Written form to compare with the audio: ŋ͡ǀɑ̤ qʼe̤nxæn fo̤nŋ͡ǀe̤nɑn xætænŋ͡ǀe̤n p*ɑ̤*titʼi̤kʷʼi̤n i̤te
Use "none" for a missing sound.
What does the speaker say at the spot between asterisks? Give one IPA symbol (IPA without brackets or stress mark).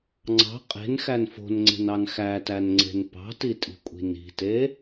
ɑ̤